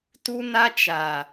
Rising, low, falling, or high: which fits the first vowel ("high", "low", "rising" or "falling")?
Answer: high